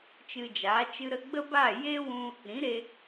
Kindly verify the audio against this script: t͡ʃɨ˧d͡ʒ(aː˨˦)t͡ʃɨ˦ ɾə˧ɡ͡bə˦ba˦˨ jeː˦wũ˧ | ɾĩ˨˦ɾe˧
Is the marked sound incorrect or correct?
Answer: correct